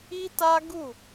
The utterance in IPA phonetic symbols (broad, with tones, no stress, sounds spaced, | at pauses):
i˦ t a˦ ɡ u˦˨